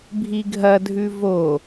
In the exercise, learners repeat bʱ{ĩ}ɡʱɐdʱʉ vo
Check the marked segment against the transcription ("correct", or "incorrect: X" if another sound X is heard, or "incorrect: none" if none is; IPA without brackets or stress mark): incorrect: i